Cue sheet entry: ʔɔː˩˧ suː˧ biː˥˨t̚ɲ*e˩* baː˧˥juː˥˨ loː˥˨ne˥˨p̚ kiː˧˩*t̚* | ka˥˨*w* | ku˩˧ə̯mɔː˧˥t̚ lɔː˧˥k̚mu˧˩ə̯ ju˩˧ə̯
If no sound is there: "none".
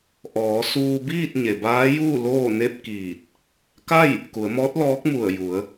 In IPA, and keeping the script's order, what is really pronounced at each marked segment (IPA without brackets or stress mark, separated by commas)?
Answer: e˩, t̚, j